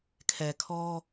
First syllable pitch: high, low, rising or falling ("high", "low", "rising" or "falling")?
low